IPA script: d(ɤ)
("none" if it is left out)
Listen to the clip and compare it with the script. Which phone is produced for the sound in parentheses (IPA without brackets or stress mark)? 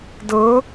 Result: ɤ